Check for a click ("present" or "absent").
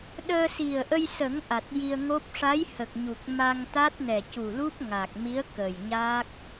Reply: absent